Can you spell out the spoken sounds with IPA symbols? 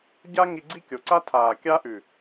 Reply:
ɟa˦ ŋi˧ɡ͡ǀi˦kʲo˨ǀa˦ tʰaː˨kʲa˦ʔʉ˨

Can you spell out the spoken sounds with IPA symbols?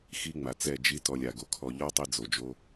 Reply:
xi˦ŋ͡ma˨t͡sɛ˦˨d͡ʒi˦ tɔ˧lʲa˨ɡo˧kʰɔ˧ ʎɔ˦ tˤi˦d͡zo˨d͡ʒo˦

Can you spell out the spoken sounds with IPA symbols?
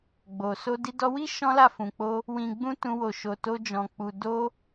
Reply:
ɡ͡bo˨ so˧di˧ dɔ˧wi˦ ʃɔ̃˦la˦˨fũ˨k͡po˧ | wĩ˨ɡ͡bũ˧ tũ˧wo˨ʃo˨to˧ d͡ʒɔ̃˨k͡pu˨ do˧

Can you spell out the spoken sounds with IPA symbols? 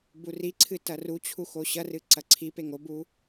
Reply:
buriǀʰɨ tɐrut͡ɕʰu xoɕɐrɨ ǀɐǀʰipeŋ obu

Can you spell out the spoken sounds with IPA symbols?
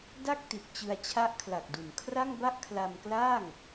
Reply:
da˥˩k̚ti˨˩t̚ t͡ɕɯ˧a̯t͡ɕʰa˦˥ʔkʰla˨˩k̚du˩˦n kʰra˥˩ŋba˥˩ʔ kʰla˧mklaː˥˩ŋ

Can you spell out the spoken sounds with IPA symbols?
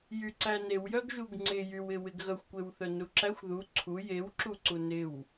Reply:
jyǀæ newjœɡʒuɡ ŋ͡ǀɪ jywɪwɪɡ ɣœxʷkʷewθœnu ǁæxʷ ðu ǀʰu jewǁuǀu nɪw

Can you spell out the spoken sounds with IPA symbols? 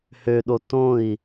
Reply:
høɗo tõi̯

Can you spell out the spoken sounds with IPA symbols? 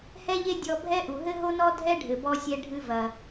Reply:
hɛ˥ʎe˥ dʲɔ˧bʱɛ˥ ʔu˩ɦɘ˥ɦo˥nɔ˥ dʱɛ˥ɖʱɘ˩bɔ˧ sʲɛ˧ɖʱɨ˧vɐ˩

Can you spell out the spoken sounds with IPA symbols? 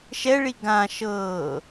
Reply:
ʃɛɭi ɡã ʃɤː

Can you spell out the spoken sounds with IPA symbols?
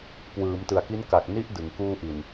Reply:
kwɯː˩˦m tɯ˨˩a̯ki˦˥nka˨˩k̚ ni˦˥ʔ dɯ˩˦ŋkuː˥˩ʔi˨˩n

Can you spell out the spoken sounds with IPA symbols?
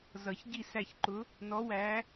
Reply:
zʌ˨˩˦çɟi˥˩ sæ˥˩çǃʊ˧˥ | nɔ˧˥wæ˧˥

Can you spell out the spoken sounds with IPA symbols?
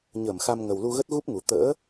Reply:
ɲəː˧˩mxa˧m ŋə˨˩wlu˧ ɣə˦˥t̚ɣu˦˥p̚ŋu˨˩ t̪ə̰ː˧˥

